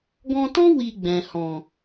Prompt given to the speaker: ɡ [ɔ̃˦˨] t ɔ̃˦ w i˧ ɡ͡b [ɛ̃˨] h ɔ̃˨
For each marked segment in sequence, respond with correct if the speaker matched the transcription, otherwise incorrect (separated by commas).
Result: incorrect, correct